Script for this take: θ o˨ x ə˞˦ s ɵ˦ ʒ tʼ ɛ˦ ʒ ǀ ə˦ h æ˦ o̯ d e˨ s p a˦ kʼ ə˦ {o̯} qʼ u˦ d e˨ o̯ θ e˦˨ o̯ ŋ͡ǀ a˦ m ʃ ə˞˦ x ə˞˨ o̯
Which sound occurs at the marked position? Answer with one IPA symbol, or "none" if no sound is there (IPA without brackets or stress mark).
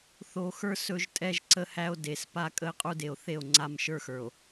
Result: e̯